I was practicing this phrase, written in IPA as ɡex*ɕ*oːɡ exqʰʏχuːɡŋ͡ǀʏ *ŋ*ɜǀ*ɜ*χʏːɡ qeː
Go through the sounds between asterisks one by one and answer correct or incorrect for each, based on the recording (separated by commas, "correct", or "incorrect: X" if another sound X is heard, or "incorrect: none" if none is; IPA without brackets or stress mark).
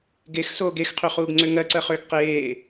incorrect: s, correct, correct